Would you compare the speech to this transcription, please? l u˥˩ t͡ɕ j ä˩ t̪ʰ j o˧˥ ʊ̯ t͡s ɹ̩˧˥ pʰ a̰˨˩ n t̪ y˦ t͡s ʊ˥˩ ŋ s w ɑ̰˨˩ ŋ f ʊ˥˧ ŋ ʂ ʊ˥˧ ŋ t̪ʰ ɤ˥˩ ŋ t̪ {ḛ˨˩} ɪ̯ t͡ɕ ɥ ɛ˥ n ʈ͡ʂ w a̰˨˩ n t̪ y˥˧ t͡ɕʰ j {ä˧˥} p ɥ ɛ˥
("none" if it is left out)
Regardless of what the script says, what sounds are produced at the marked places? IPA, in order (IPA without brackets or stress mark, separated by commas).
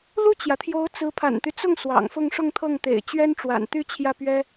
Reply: ḛ˨˩, ä˥˩